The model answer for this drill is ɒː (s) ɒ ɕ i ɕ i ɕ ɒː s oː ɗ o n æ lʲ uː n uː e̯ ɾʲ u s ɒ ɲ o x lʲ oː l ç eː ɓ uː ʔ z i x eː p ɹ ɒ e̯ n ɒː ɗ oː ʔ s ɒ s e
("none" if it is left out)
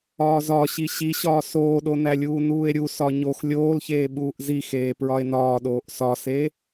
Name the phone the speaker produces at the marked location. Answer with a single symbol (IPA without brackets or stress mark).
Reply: z